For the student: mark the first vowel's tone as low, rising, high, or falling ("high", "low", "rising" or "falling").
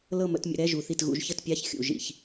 falling